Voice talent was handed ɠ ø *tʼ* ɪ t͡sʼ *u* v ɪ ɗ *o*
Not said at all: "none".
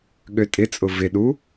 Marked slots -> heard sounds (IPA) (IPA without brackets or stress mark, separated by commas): tʼ, ʊ, u